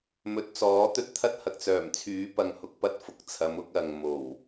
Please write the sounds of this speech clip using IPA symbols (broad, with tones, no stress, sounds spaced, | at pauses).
m ɵ˨˥ t̚ t͡s ɔː˨˥ t̪ ɵ˥ t̚ t̪ʰ ɐ˥ t̚ h ɐ˨ k̚ t͡s œː˨˩ m t͡sʰ yː˨˥ p ɐ˨ ŋ h ʊ˧ k̚ p ɐ˥ t̚ f ʊ˨˥ k̚ t͡sʰ ɐ˨˧ m ʊ˨˥ k̚ ɐ˨ ŋ m o˨˩ w